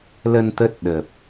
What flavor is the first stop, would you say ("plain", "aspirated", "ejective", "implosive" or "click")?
plain